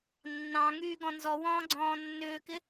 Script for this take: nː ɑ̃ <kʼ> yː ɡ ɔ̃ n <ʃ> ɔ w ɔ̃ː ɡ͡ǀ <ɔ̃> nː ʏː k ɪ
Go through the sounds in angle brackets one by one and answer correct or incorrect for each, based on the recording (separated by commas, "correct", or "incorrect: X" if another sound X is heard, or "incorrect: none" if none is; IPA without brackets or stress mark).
incorrect: ŋ, incorrect: z, incorrect: ɔ̃ː